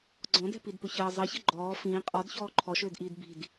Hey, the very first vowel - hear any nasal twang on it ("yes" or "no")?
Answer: yes